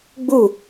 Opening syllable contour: falling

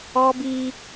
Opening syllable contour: high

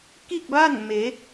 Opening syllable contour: falling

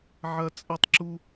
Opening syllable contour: high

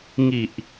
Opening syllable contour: low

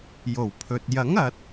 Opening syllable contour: low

